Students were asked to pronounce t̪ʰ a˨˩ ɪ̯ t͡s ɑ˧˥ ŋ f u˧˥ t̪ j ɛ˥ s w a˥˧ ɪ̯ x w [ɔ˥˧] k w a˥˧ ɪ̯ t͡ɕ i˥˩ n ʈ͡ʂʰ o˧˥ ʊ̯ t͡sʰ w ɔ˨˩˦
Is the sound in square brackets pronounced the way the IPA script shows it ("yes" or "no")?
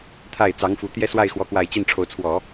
yes